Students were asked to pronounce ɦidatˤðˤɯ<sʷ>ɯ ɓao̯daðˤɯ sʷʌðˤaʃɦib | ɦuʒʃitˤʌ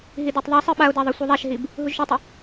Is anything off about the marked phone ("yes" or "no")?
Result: yes